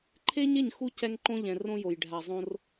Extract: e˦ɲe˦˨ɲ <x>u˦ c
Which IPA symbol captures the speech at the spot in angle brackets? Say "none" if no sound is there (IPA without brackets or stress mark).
x